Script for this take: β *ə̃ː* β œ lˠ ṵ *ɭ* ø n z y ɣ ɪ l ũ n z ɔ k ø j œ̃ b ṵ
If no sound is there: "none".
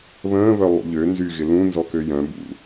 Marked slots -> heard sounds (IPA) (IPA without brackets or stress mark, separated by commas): ə̃ː, ʎ